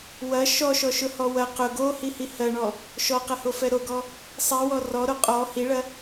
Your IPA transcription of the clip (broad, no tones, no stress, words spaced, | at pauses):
wɐ ʃɔʃɔʃʊhɔ wɐ qʊ ɡohihi hɜɳɔ | ʃɔqɐhofɛ ɾoɡɔ | sˤiwɔ rɔɾo qʼɔ hiɭɐ